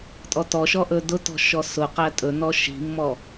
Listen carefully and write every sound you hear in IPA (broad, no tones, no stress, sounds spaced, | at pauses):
tʼ ɔ t ɔ ʃ ɔ ʔ ɵ d ʊ t ɔ̤ ʃ ɔ s ʊ q æ tʼ ɵ n ɔ ʃ i̤ mː ɔ